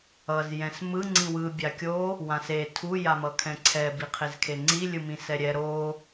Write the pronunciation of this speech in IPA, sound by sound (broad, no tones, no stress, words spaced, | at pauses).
ʌz jɛ̃smɯ ŋ͡ǀĩwɯ bʲakʲo | wãse tʰu jamʌkʰɛ̃ǀʰɛ biqʰezkʰeŋ͡ǀi lʲɯmĩsɛɾʲɛ ɾo